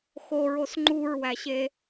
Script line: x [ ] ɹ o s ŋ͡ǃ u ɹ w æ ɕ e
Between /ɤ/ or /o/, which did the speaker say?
o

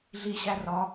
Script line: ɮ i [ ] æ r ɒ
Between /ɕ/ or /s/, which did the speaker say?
ɕ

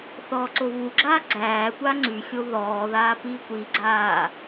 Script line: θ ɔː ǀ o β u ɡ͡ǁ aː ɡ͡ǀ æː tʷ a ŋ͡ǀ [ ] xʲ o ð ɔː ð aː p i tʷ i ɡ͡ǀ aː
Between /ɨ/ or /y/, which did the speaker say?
y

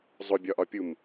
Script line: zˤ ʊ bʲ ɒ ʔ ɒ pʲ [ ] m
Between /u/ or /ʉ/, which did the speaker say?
u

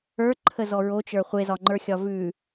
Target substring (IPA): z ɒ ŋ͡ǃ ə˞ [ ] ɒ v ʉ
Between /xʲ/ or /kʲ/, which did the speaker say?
xʲ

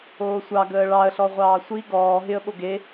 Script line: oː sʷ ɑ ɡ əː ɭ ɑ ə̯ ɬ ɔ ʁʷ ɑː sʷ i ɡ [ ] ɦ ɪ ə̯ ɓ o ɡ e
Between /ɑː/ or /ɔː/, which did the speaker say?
ɔː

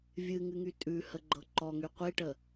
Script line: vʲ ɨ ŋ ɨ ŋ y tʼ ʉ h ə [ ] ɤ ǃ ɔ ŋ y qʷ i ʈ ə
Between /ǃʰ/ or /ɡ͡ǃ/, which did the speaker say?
ɡ͡ǃ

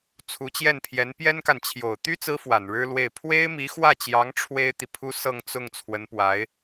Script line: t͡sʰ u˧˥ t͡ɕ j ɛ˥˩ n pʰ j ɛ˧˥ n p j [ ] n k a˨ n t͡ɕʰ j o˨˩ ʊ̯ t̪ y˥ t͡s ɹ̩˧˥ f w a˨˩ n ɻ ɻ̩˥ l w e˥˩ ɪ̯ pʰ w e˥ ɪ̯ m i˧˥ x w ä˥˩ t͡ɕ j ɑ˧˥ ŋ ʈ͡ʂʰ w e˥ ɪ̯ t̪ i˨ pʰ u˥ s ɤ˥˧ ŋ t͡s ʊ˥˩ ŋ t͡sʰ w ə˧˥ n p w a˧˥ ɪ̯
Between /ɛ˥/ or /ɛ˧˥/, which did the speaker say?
ɛ˥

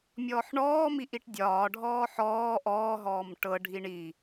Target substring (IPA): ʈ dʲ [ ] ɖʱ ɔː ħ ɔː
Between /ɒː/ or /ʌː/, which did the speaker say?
ɒː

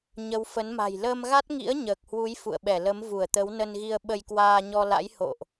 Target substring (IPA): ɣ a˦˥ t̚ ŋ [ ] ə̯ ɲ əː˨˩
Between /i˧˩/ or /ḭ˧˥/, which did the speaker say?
ḭ˧˥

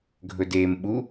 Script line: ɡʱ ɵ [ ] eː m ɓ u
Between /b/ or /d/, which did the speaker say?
d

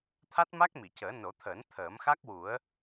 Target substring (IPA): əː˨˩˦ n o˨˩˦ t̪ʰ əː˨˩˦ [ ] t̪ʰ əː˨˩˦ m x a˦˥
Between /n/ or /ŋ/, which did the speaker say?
n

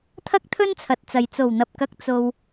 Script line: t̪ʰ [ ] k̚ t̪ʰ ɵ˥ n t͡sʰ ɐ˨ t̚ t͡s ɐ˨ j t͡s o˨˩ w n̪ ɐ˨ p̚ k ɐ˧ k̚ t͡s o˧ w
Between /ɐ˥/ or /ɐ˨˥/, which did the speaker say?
ɐ˥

